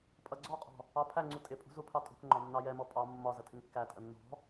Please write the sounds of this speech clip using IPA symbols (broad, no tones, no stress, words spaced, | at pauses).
pʼʌɡ͡ǀɔqʼɔ̤ | ɑpʰæŋ͡ǀu tʼɪpʼṳ zupʰɑtʼṳkŋ͡ǃɒ nːɑjɛmɔ pʼɑ mːɒ zətʰɪŋkːætʼə nːɔ̤